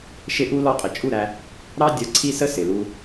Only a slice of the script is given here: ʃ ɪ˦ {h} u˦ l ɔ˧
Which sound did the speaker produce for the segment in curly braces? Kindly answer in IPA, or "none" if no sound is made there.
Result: ʔ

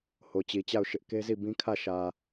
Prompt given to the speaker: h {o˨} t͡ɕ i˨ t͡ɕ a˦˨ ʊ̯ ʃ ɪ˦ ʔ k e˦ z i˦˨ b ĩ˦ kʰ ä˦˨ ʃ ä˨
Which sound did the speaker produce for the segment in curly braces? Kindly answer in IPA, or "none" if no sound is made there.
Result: o˨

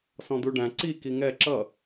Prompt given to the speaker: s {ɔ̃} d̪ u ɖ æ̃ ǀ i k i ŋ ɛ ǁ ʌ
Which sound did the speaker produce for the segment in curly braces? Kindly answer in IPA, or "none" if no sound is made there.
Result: ɔ̃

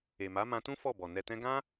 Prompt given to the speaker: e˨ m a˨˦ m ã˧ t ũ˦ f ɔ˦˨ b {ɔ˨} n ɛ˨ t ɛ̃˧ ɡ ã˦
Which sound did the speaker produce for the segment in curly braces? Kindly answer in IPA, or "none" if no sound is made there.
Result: ɔ˨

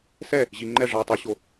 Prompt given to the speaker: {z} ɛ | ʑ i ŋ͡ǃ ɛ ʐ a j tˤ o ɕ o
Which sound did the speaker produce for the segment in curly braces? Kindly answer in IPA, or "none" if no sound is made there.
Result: s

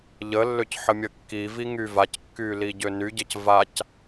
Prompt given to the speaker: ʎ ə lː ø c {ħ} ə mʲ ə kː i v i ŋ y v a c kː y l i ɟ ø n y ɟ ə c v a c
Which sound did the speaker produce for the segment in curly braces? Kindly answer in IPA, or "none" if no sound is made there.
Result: ħ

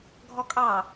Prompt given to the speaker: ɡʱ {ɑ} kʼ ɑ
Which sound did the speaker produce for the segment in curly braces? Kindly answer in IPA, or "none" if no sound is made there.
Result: ɔ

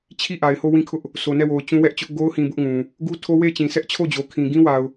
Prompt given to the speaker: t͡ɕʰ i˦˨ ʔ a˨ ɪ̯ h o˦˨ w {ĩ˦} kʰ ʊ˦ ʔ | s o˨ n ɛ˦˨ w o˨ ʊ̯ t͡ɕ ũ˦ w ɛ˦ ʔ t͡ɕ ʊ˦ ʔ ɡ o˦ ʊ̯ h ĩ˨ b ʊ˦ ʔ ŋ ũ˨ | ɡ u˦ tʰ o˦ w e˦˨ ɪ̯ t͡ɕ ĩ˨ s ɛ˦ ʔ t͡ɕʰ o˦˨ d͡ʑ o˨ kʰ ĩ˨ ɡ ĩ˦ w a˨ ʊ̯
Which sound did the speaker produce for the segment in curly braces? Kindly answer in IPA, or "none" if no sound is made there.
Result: ĩ˦˨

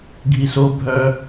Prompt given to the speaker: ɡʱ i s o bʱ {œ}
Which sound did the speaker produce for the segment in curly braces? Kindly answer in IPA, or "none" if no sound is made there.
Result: œ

